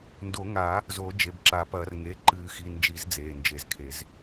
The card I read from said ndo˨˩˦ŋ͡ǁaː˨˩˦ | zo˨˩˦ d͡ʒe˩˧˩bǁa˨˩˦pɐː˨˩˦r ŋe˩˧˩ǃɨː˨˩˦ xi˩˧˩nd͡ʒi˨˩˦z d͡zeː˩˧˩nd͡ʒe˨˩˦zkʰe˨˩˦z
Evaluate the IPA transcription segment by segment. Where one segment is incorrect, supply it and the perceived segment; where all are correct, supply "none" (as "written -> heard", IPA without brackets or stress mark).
ŋ͡ǁ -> ŋ